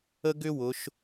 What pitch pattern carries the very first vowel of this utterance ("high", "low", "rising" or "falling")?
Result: high